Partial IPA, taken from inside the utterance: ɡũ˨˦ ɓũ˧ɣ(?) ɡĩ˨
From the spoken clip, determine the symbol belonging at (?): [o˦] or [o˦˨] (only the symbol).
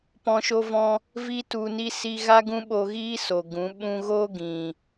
o˦